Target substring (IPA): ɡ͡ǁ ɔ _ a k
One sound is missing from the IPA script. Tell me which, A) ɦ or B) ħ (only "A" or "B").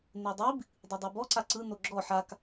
B